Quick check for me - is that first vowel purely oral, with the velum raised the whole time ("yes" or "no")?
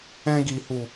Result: no